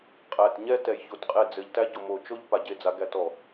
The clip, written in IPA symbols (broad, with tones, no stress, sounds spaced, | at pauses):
qʼ æ˨ t ɲ ɛ˦ t ɛ˨ j ç o˨ t qʼ e˦˨ d͡z ɘ˨ ʎ t æ˦ ɟ o˨ m o˨ t͡ʃ o˦ ʎ p a˨ ɟ e˦ d͡z a˨˦ ɡ æ˦ t ɔ˨